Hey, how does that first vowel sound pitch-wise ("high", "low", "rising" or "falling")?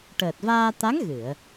low